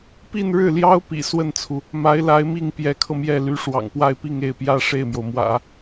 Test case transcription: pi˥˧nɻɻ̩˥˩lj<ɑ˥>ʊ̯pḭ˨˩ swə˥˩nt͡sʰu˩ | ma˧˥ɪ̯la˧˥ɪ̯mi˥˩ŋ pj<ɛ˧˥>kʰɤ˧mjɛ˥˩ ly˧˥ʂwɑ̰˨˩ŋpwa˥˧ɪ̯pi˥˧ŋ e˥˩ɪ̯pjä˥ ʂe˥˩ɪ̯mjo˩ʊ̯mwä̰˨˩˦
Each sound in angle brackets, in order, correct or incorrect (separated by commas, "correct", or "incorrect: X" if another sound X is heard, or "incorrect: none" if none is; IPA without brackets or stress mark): correct, correct